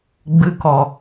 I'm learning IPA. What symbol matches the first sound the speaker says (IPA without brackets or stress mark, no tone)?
ɡ͡b